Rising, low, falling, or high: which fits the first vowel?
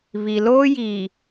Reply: low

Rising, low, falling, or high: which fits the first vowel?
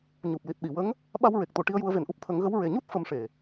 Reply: low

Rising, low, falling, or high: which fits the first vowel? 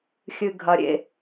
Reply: low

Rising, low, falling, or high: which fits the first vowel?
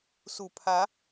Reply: low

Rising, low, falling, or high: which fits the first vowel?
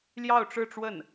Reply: falling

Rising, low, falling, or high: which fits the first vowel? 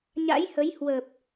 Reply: rising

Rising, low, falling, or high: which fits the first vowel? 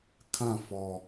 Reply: falling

